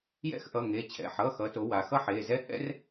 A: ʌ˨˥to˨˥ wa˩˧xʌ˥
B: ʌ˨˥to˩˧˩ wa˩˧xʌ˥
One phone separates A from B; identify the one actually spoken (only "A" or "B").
A